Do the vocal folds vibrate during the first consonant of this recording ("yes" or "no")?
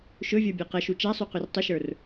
no